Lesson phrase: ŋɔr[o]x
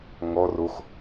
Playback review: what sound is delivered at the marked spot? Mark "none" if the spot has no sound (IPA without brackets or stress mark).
o